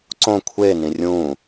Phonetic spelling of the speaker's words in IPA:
ǀ õ kʷʰ eː n ĩ rʲ ũː

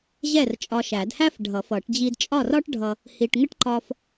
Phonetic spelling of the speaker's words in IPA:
ʑ ɛ˥˩ r t͡ʃʼ ɒ˧ ʃ æ˨˩˦ d h æ˥ f ɖʱ ʌ˨˩˦ f ʌ˨˩˦ ʈ d͡ʑ i˧ d t͡ʃʼ ɒ˥˩ r ɒ˥ ʈ ɖʱ ʌ˧ | h i˧ ʈ ŋ ə˥ ʈ ǃ ɒ˥ f

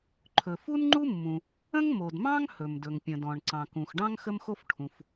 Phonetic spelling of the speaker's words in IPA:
ǃʰ ɵ˩ f u˥ n ŋ͡ǃ u˥ mː ũ˩ | ə̃˥ ŋ m o˩ d m ɑ̃˥ ŋ h ɵ˩ m d ɵ˩ ŋ pʲ ə̃˩ d ɔ̃˩ ɳ ǀ ɑ̃˩ k ũ˩ x ɖ ɑ̃˥ ŋ x ə˥ m x o˥ f ʈʰ ũ˩ f

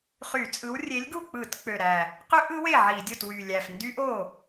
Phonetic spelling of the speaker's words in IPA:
χ y˧˩˧ t͡sʼ ɯ˨˥ w rʲ e˨˥ lʲ ɡ u˥˩ k͡p ɯ˧˩˧ t k͡p ø˨˩ ɾ æ˨˩ | q ø˦˥ ʔ ɯ˨˥ w e˥˩ ʕ i˧˩˧ dʲ o˥˩ t w y˨˩ lʲ æ˨˩ f n d y˦˥ ʔ o˥˩

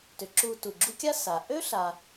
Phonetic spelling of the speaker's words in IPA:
t ʏ˩ ǁ u˨ t u˩ ɡ͡ǁ u˦ kʲ a˥ s a˩ ʔ ø˥ ɬ a˨

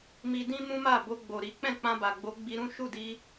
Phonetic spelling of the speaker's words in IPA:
m i˧ d ĩ˦ m ũ˦ m a˦˨ b o˧ ɡ͡b o˨ ɾ i˨˦ k͡p ɛ̃˦˨ k͡p ã˧ b a˨ ɡ͡b o˨˦ ɡ͡b i˧ ɾ ũ˦ ʃ u˦˨ d i˧

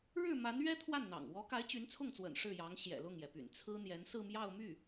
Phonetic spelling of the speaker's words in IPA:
ɻ ɻ̩˥˩ m a˧˥ n ɥ ɛ˥ t̪ʰ w a˥˩ n n̪ ɑ̰˨˩ ŋ w ɔ˧˥ k a˧˥ ɪ̯ t͡ɕ y˧˥ n t͡sʰ ʊ˥˩ ŋ t͡s w ə̰˨˩ n ʂ ɻ̩˥˩ j ɑ˧˥ ŋ ɕ j ɛ̰˨˩ l ʊ˥˩ ŋ j ɛ˩ p y̰˨˩ n t͡sʰ ɹ̩˥ n̪ j ɛ˧˥ n s ɹ̩˥˧ m j ɑ˥˧ ʊ̯ m y˥˩

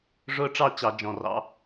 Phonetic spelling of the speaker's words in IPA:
ʐ ʊː˦ ʈ͡ʂ ɑ˥˨ t͡ɕ ɑ˧˩˧ d͡ʒ ɔ̃˨˩ r ɑ̰˨˦

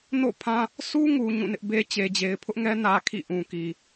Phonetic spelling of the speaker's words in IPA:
n o̰˦˨ pʰ ã˦ | s u˦ ŋ u˨ ɲ ũ˦˨ n ɪ˦ ʔ b e˦ t͡ɕ e˨ d͡ʑ e˨ ɪ̯ pʰ ʊ˦ ʔ ŋ ɛ˦ n ä˦ kʰ ḭ˦˨ ʔ ũ˨ k i˨

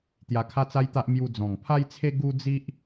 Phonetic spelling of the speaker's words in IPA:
t̪ j a˧ kʰ a˦ t͡s a˦ j t̪ a˦ ʔ m j u˧ d͡z ɔ̃˨˩ ŋ pʰ a˦ j t͡sʰ e˦ ɡ u˦ d͡z i˦ ʔ

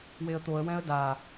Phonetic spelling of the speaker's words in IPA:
w e ə̯ t̪ o ə̯ w ɛ̃ ə̯ d a

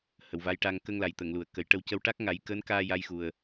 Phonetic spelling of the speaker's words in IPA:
h ə˨˩ w v a˧˥ j ʈ a˧ ŋ k ə˧ ŋ l a˨˩ j t̪ ə˨˩˨ ŋ l u˨˩ ə̯ k ə˨˩˦ j ʈ ə˧ w c ə˧ w ʈ a˦˥ k̚ ŋ a˨˩˦ j k əː˧˥ n k aː˧ j a˧ j x u˨˩ ə̯

